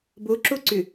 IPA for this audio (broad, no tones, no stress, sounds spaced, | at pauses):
b o ǁ o ǀ ʏ